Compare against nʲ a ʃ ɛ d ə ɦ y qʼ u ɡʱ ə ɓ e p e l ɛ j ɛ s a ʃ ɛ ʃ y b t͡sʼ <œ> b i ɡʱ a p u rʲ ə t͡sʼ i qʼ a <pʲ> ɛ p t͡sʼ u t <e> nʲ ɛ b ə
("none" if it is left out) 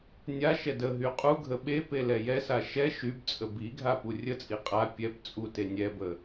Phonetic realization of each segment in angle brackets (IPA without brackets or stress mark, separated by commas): ə, pʲ, e